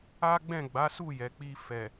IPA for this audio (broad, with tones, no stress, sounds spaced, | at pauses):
a˦ ɡ͡b ɛ̃˦˨ ɡ͡b a˨˦ s u˦˨ j ɛ˨ k͡p i˧ f ɛ˨